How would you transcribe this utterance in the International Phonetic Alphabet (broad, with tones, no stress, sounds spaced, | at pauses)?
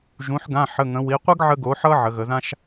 ʒ ũ˩˧ ħ ɡ ã˩˧˩ ħ ə˩˧˩ ŋ ə̃˩˧ w i˩˧ qʷ ə˥ ɡ ʕ ə˧ ɡ o˩˧ ħ ʌ˧ ʕ ə˩˧ ɣ ə˩˧ ð ã˥ ʃ